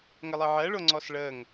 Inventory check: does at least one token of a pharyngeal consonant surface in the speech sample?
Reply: yes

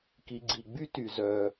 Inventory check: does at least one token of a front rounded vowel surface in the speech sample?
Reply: yes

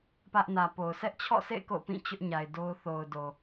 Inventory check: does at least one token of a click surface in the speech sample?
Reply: no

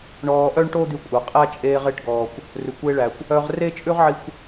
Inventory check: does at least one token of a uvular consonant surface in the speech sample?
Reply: yes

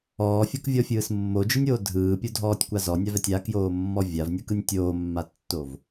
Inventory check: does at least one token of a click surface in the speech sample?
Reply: no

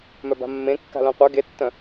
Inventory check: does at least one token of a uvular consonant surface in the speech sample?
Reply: yes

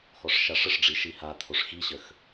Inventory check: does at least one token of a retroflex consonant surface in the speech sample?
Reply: yes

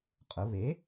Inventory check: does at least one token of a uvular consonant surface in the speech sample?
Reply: yes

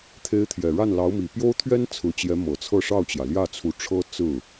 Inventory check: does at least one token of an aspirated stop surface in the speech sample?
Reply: yes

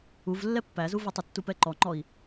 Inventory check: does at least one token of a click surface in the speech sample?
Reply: yes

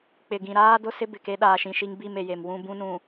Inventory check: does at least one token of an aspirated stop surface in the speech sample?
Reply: no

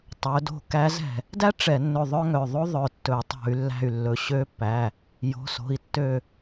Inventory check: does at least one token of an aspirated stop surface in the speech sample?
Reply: no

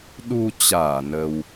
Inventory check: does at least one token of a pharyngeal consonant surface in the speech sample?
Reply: no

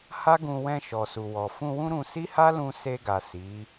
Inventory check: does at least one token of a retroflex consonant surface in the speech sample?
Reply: no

